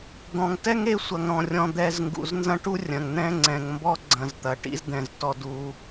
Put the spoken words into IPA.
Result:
d̪ ɔ̃˨ ŋ t ɛ˦ ŋ e˧ sʷ ɐ˨ ŋ ɾ ɔ̃˨ rʲ ɔ̃˨ d̪ ɛ˨ z ŋ ɡ ṵ˨ z n z ɐ̃˦ ʈ u˦ rʲ ɐ̃˨ ŋ n̪ ɛ̃˦ ŋ͡ǀ ɛ̃˨ ŋ m b ɔ˦ ɡ͡ǀ ɐ̃˨ z t̪ ɐ˨ ʈ ḭ˦ z d̪ ɛ̃˨ z t ɔ˧ d u˧

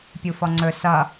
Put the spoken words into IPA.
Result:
pʲ u f ɔ ŋ͡ǀ ɵ s ʌ

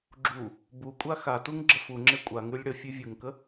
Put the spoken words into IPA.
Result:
ɡ͡ǁ u | b u kʷʼ a x a t u ŋ ɡ͡ǁ ə f u ŋ͡ǁ e kʷʼ a ŋ ʉ lʲ ɽ ə fʲ ʉ vʲ u ŋ k ə

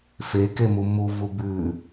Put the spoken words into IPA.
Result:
f e k e m u m u v u b ʉ

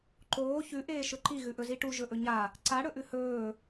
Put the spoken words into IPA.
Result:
ǃ oː ç ʉ ʔ eː ʃ ɵ ǃ i ɣ ʉ ʔ ɵ z i ʈ u ʒ ɵ ʔ ɵ ɲ a | ǀ a ɽ ɵ ʔ ʉ h ɵː

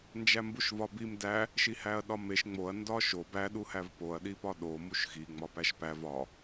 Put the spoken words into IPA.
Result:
n d͡ʒ æ m b u ʃ v ɒ b i m d æ | ʃ i h æ ɐ̯ ɗ ɒ m e ʃ ŋ͡m o ɐ̯ n d ɒ ʃ o b æ ɗ u h æ v p o ɐ̯ ɗ i p ɒ ɗ o m u ʃ x i ŋ͡m ɒ p æ ʃ p æ v ɒ

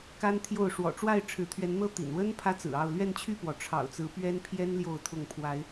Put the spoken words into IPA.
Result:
k a˦ n t̪ʰ j o˥˨ ʊ̯ ʂ w ɔ̰˨˩ ʈ͡ʂ w a˥˨ ɪ̯ ʈ͡ʂʰ ɻ̩˨˦ t̪ʰ ɥ ɛ˨˦ n n̪ ɤ˦ t̪ ḭ˨˩ n w ə˦ n pʰ ä˦ t͡s ɹ̩˨˩ ɑ˥˨ ʊ̯ l ɥ ɛ˥˨ n t͡ɕʰ y˥˨ p w ɔ˩ ʈ͡ʂʰ ɑ̰˨˩ ʊ̯ t͡s ɹ̩˨˦ p ɥ ɛ˦ n pʰ j ɛ˦ n l j o˥˨ ʊ̯ t̪ʰ ʊ˥˨ ŋ pʰ w a˨˦ ɪ̯

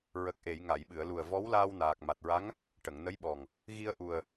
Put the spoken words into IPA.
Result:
ɹ ə˨˩ k̚ ʔ e˨˩˨ j ŋ a˨˩˨ j ɓ ɨ˨˩˨ ə̯ l u˨˩ ə̯ v ɔ˧˥ w l aː˧ w n aː˨˩ k̚ m a˨˩ t̚ ɹ a˧˥ ŋ | ʈ ə˨˩˨ ŋ n ə˧˥ j ɓ ɔ˨˩ ŋ | ɣ i˧ ə̯ ʔ u˨˩ ə̯

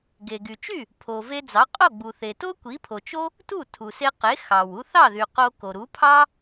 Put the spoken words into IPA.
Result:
ɡ e˩ ɡ y˩ t͡ʃ y˥˩ | pʰ o˩ v e˧ d͡z ɑ˩˥ qʼ o˥˩ ɡ͡b u˩ θ e˩ t o˥ kʷ i˩˥ pʰ o˩ t͡ʃ o˥ | t u˥˩ tʰ u˩ s e˧ q e˩˥ x ɑ˩ w u˧ θ ɑ˥˩ ð y˩ q o˧ k o˩ ɾ u˩˥ pʰ ɑ˥

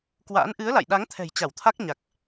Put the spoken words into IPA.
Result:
k w a̰ː˧˥ n ʔ ɨ˨˦ ə̯ l a̰˧˨ j ɗ a˨˦ ŋ t̪ʰ ɛ̤˨˩ j t͡ɕ a˧˩ w t̪ʰ a˦˥ k̚ ɲ a˨˩ k̚

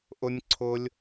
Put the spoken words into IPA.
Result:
ʔ ʊ˦ nʲ ǀʰ ʊ˦ lʲ

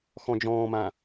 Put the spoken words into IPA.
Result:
x ɔ̃ d͡ʒ ɔ̃ː m ã

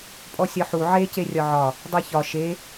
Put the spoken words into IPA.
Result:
pʼ ɔ sʲ ɒ ħ u ʕ e c e rʲ ɒ ʕ ɒ | dˤ e ç ɒ ʃ e

